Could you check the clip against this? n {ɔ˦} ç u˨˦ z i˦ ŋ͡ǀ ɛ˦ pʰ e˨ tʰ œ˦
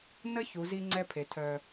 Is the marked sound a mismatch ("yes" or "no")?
yes